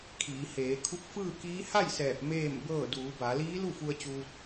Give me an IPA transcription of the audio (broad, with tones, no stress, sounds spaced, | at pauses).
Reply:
kʰ iː˩˧ h eː˩˧ kʰ u˧˥ k̚ f ɯː˥˨ k iː˧˥ h a˥˨ j s ɛː˧˩ p̚ m eː˥˨ m b ɤː˥˨ d uː˩˧ b a˩˧ l iː˧˥ l u˥˨ f u˧ ə̯ t͡ɕ uː˧ t̚